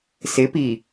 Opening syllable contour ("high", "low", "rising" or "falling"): rising